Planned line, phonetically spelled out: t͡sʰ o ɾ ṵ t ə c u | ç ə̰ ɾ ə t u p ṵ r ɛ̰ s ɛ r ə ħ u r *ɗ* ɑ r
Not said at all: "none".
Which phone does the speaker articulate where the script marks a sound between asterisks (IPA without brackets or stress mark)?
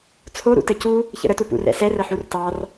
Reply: t